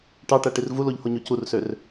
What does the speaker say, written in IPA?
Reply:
ʈ ɑ ʈ æ ʈ i r v u l o ʎ h o ɲ o c u r s ø r

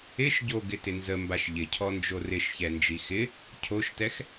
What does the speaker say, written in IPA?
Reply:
ɪ ʃ ɟ o ɡ ɪ t ɪ n z ə m b a ʃ ʎ ɪ cʰ ɔ n d͡ʒ o r ɪ ʃ ç ɛ n d͡ʒ i x ɪ | cʰ o ʃ t ɛ x

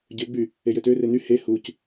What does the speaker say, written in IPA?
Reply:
ɟ ø ɡ͡b y | e j ø t ø r e n y h e h u c

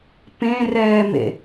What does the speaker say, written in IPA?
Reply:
p ẽ r ɛː m ḛ

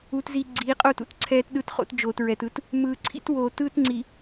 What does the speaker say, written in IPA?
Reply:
u˨ t z i˨ ɡ͡ǀ iː˨˦ qʼ o˦ t ṵ˨ t ǀʰ ɛː˦ t ɗ ɯ˦ t χ o̰˦ t d͡ʒ oː˨ t ɹ ɛ˨ t ɯ˦ t | m ɯː˨ ǀʰ ḭ˦ t w oː˨ t ɯː˦ t ŋ͡ǀ i˨

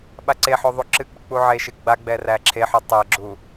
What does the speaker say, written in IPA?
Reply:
ɓ a ǀ e ħ o ðˤ u ǁ ɨ k͡p ɨ k͡p u ʕ e ʃ ɨ ɡ͡b a ɡ͡b ɛ r æ ǁʰ e ħ u tˤ æ ɡ͡ǁ u

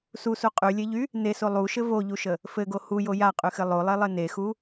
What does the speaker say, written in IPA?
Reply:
s u s u qʼ y lʲ e ʎ y | n e s o lˠ u ʃ ɘ v o ʎ u ʃ ə | f ɘ ɡ o h u j o j a qʼ y x ɘ lˠ o lˠ e lˠ ɘ n e x u

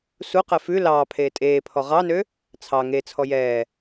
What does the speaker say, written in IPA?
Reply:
s u q ɛ f ʉ l ɑː pʰ eː tʼ eː pʰ ɔ ʁ ɑ n ø | t͡sʰ ɑ ŋ e t͡sʰ ɔ j ɛː

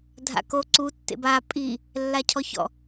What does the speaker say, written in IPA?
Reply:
dʱ a̰ k o ǀ u tː ḛ b a pʼ i | lː a cʰ ɔ ç ɔ̰

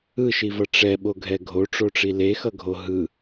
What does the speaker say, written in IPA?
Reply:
ɯ ʃ i v ʌ ʈ͡ʂ ɛ ɓ o ɡʱ ɛ ɡʱ o ʈ͡ʂ o ʈ͡ʂ i l e x ʌ ɡʱ o ɦ ɯ

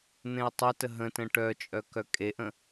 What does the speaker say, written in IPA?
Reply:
n̪ ẽ ʊ̯ tˤ œ t ə ɦ ə̃ t ə̃ ʈ œ t͡ʃʼ œ k œ kʼ e ʔ ə̃

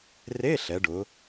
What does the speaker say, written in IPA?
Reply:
r e˧˥˧ ɬ ɛ˩˧ ɖ ʊ˩˧

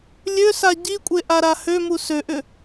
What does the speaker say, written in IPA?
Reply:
lʲ ø s a ɟ i kʷʼ e ʔ a ɾ a h ø m u s ø ʔ ʏ

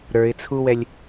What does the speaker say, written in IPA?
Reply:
ɾ ə˞ ɪ̯ t͡sʰ u w ɛ lʲ

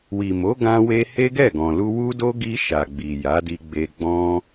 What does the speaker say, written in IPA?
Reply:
w i˨ m o˨˦ ɡ ã˧ w e˧ h e˦ ɡ ɛ˦˨ ɡ ɔ̃˨ l u˧ w u˦ d o˦ ɡ i˧ ʃ a˨ ɡ͡b i˨ j a˨˦ d i˧ ɡ͡b e˧ ɡ͡b ɔ̃˦

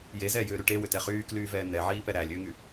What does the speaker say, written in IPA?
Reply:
j e z ɛː j ʏː ɾ y ʈ e w ʏ t ɛ χ yː k l yː v ɛː n ɛ ʕ iː p ɛ ɾ æ lʲ ʏː ŋ y

